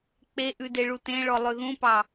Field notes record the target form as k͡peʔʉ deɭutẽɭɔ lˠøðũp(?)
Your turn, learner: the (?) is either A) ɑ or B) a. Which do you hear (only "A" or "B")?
A